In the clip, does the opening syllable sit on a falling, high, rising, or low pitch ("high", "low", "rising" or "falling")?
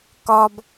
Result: low